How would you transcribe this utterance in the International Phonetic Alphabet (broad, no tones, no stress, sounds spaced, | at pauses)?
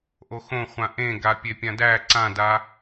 ʔ o x õ χʷ ã ʔ ẽ ɡ a pʲ e pʲ ã d æ ǀ ã d a